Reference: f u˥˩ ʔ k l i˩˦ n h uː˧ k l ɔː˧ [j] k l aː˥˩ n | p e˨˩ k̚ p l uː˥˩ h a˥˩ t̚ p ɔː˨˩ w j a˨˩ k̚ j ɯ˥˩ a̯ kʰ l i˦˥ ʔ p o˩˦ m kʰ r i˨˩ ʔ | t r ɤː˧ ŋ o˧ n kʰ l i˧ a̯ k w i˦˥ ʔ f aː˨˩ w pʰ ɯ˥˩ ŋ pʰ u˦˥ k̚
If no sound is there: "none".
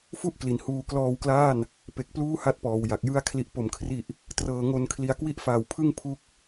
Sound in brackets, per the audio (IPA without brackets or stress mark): w